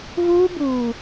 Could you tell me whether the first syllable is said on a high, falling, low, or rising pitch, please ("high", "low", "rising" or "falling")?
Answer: high